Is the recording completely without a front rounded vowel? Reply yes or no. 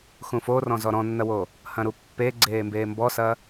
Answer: yes